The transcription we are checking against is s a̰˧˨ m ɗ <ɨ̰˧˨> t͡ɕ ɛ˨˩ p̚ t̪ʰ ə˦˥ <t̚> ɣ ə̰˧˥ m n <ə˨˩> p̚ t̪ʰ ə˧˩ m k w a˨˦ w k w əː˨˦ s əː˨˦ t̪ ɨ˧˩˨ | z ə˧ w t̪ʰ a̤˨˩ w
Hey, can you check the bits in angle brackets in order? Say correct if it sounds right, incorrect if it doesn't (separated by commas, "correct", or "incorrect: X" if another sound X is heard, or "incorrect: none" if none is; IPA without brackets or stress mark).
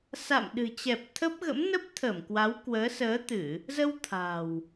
incorrect: ɨ̤˨˩, incorrect: p̚, incorrect: ə˦˥